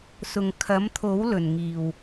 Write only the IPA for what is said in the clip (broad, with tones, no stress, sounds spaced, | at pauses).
s ʊ˨ ŋ kʰ ɐ˨˥ m t̪ʰ o˨˥ w l ɵ˨˩ n ŋ iː˨˩ w